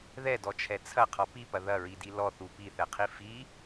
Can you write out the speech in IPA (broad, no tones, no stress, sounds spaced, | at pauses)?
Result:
ð ɛ d ɔ t͡ʃʰ ɛ t͡sʰ ɐ qʰ ɔ p i p ɐ ð ɐ ɹ i d i l ɔ θ u p i θ ɛ qʰ i f i